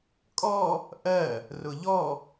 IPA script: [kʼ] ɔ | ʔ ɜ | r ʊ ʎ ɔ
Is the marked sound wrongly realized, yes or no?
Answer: no